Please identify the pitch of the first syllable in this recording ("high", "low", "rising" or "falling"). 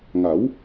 rising